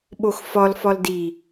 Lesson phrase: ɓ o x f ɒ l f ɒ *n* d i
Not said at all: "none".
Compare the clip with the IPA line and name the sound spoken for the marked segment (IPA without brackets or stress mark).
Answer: l